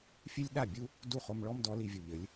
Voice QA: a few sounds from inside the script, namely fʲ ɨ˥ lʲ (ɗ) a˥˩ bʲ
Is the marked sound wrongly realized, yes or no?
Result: no